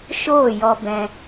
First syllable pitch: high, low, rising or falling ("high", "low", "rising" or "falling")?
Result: falling